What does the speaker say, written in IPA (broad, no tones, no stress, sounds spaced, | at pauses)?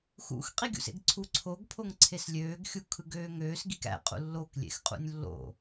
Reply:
x ṵ x qʼ i ɡʲ ṵ s ḛ ɡ ǀʰ u ǀʰ o ɡ pʰ o ŋ ǀʰ e s lʲ øː ɡ xʲ u kʰ ɯ ɡ øː ŋ øː s ɡ i k æ̰ qʼ ṵ lː o k lʲ ḛ x qʼ ṵ nʲ lː o̰